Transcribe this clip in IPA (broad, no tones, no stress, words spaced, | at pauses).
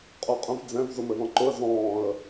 qʼuqʼə̃v d͡zɛ̃v zʊmɘðɔ̃ǃʊə̯ zɔ̃ːə̯